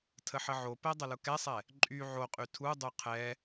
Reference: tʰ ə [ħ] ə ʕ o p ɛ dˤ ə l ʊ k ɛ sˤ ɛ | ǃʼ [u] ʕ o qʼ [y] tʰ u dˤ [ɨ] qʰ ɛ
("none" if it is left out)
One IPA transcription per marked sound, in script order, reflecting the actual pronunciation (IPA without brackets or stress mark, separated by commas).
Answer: ħ, y, y, y